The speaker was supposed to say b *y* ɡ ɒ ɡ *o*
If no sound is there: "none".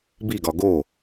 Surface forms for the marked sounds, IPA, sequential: i, o

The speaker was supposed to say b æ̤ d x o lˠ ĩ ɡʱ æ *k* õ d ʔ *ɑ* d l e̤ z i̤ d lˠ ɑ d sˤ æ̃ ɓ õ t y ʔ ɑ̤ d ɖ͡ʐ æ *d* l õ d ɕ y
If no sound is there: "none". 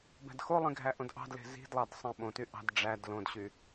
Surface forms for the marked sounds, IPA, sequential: ʔ, ɑ̤, d

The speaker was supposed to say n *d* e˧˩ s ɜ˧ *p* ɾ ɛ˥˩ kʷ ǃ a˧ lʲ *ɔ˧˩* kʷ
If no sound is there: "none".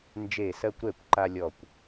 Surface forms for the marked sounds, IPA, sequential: d͡ʒ, kʷ, ɔ˧˩

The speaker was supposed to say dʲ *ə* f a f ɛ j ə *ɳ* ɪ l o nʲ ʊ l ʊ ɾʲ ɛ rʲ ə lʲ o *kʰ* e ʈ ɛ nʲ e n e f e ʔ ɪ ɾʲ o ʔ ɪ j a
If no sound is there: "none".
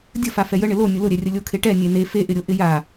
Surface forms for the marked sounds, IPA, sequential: ə, ɳ, kʰ

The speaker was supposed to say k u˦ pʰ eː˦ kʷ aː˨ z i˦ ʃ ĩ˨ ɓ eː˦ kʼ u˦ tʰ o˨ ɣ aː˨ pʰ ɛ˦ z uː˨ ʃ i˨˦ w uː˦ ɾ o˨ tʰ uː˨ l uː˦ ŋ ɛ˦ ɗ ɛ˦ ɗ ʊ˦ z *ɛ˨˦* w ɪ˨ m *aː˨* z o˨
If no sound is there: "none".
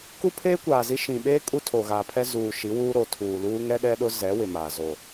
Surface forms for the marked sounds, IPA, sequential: ɛ˨˦, aː˨

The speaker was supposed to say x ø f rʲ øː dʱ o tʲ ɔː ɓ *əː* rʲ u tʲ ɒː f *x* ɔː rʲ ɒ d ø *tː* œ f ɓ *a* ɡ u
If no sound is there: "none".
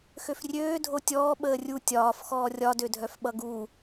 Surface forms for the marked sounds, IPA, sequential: əː, x, dʱ, ʌ

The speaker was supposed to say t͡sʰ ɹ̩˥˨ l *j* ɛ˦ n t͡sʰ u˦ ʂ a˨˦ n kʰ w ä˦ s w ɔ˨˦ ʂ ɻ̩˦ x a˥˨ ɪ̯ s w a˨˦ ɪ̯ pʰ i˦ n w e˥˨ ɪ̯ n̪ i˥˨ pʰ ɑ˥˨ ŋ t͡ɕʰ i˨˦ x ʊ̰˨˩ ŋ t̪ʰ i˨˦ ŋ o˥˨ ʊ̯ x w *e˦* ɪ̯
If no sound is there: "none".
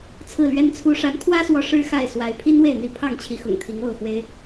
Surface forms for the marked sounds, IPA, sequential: ɥ, e˦

